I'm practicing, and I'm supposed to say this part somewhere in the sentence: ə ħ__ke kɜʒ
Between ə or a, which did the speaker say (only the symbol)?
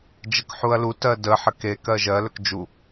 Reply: ə